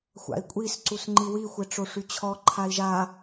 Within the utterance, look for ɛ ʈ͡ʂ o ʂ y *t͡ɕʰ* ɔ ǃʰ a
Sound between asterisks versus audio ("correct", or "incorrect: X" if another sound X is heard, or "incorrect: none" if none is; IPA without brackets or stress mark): correct